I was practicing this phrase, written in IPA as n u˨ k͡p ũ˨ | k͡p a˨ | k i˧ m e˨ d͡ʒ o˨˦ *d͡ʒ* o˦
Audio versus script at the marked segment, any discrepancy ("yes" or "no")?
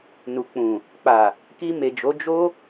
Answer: no